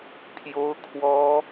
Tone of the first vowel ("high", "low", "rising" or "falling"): high